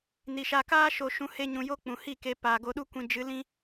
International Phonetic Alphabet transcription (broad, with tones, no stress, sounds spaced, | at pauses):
n i˨ ʃ a˧ k aː˦ ʃ o˧ ʃ ũ˧ h e˦ ɲ ũ˧ j o˦ k͡p ũ˨ h i˦˨ k e˧ p aː˨ ɡ o˧ ɗ u˦ kʷ ĩ˧ d͡ʒ ɨ˨˦ l ĩ˦